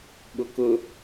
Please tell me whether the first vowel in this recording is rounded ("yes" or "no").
yes